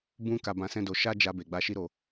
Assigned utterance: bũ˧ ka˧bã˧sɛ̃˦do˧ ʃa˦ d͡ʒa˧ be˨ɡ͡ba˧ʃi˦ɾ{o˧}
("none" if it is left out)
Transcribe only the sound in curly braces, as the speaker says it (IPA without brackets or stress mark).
o˧